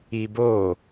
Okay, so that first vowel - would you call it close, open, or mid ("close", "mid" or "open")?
close